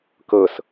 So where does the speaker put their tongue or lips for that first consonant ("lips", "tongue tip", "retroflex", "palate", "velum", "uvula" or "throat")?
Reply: velum